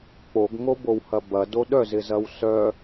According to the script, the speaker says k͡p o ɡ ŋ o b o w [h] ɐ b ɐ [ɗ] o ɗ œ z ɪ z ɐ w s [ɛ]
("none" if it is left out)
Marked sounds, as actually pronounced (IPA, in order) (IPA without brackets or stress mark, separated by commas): h, d, œ